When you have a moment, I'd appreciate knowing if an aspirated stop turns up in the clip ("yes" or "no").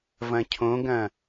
yes